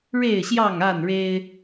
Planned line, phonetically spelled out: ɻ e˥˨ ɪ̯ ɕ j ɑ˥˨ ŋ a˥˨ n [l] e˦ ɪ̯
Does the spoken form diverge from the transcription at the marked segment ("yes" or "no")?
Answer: yes